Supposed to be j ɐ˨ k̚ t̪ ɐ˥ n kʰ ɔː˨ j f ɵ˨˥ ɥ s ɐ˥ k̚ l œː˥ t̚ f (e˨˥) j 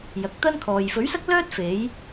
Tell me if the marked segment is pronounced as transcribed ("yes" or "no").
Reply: yes